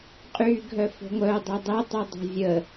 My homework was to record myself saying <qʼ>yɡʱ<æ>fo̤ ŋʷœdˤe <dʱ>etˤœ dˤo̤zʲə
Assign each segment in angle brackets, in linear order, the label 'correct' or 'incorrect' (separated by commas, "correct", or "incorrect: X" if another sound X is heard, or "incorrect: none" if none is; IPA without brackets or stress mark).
correct, incorrect: œ, incorrect: dˤ